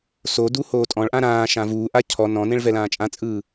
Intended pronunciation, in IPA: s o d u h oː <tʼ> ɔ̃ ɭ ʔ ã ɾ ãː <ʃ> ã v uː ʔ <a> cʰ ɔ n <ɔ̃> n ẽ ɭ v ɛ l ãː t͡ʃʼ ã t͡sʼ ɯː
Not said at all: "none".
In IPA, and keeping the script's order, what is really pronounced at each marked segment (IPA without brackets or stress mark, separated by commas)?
tʼ, ʃ, a, ɔ̃